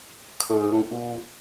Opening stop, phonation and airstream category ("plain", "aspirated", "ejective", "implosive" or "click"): aspirated